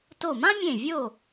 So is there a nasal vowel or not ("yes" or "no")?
yes